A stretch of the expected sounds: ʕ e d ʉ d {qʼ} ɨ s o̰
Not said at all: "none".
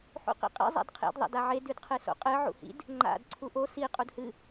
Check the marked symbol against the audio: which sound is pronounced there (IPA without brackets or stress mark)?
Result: qʰ